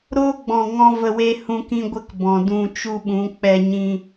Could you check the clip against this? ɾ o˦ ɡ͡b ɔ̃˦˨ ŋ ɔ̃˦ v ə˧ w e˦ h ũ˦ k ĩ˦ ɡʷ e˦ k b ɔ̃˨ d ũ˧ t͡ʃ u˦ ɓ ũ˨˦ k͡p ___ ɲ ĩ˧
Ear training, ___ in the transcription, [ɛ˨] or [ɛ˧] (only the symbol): ɛ˧